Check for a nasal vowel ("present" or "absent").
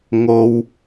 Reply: absent